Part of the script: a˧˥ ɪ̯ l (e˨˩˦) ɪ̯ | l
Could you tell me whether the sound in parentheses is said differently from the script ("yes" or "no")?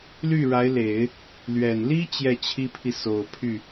no